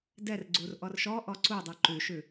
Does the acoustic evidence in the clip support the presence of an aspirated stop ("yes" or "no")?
no